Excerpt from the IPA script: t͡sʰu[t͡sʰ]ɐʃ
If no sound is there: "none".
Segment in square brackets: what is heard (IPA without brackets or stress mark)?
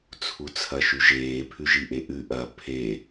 t͡sʰ